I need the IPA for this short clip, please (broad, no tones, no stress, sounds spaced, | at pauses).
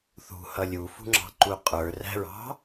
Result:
θ ṳ h ʌ lʲ u f ṳ ŋ͡ǁ ɑ̤ ǃ u qʼ ə˞ r æ̤ ɹ ɑ̤